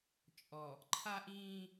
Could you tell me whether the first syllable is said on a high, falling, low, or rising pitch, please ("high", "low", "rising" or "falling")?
low